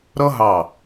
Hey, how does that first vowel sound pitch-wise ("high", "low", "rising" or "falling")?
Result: high